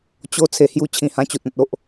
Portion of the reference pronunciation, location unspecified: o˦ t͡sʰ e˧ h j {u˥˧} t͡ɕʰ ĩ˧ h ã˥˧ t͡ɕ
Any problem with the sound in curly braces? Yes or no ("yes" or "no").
no